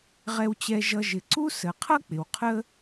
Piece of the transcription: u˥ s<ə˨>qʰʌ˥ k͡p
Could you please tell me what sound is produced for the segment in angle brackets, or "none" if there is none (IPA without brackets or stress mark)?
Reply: ə˩